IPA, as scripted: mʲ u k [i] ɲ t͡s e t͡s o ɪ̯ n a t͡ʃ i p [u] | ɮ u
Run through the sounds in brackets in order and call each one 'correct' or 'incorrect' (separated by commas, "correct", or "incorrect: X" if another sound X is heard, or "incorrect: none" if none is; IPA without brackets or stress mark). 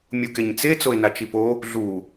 incorrect: e, incorrect: o